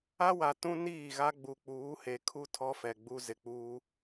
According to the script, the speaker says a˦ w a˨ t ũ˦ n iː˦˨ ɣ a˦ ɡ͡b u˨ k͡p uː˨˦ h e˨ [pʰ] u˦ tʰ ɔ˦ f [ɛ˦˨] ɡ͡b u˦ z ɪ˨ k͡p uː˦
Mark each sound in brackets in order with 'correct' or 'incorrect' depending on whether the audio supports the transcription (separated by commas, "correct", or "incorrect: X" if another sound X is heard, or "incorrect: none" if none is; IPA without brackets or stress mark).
incorrect: kʰ, incorrect: ɛ˨